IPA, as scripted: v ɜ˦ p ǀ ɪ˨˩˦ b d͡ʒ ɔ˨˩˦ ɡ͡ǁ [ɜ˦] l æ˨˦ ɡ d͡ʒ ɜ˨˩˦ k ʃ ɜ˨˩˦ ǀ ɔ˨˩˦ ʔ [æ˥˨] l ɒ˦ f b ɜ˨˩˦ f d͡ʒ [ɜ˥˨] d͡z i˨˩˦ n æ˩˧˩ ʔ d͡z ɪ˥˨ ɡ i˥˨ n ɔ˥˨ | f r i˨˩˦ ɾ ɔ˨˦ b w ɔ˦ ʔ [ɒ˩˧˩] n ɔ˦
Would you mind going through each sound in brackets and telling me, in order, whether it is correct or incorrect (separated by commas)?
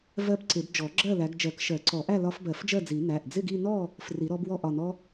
incorrect, correct, correct, correct